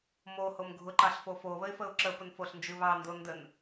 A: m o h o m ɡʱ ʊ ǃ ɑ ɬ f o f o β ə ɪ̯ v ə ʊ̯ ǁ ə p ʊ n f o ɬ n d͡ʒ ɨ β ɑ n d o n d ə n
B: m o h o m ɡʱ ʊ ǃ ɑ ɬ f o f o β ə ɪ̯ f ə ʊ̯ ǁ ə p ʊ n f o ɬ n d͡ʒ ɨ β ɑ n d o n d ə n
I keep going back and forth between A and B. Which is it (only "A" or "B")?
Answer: B